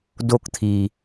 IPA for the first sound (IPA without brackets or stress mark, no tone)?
d